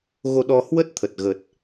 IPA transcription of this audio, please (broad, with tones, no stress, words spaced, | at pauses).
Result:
ɣo˧ɗɔ˧ hwə˦˥t̚ t̪ʰə˨˩t̚ɣə˨˩t̚